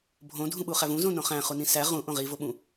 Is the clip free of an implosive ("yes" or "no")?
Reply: no